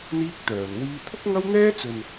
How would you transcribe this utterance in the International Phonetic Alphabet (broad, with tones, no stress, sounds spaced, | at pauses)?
n̪ iː˥ k̚ t̪ œː˨ n w iː˧ t̪ʰ ʊ˥ k̚ ŋ ɐ˥ w n̪ ɛː˥ t͡s ɵ˨ n